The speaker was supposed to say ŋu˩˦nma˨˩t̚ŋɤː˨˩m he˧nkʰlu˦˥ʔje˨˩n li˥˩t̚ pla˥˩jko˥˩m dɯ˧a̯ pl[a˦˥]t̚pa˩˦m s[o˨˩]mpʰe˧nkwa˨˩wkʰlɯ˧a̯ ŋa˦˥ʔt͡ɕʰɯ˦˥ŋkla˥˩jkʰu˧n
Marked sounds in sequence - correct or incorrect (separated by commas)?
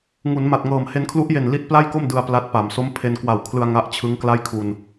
correct, incorrect